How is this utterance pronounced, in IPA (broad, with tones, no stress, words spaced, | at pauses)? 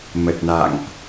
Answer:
mə˨˩t̚na̰˧˨ŋʔ